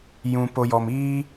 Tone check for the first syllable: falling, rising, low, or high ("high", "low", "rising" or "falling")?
low